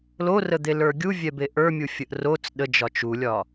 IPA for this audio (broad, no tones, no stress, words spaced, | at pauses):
lorəd̪e lə˞ɡʲuvʲɛbe ʔə˞mʲu fʲəʔrot͡s ɗə d͡ʒɒt͡ʃulʲɒ